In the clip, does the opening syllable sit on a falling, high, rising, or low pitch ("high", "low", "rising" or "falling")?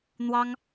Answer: high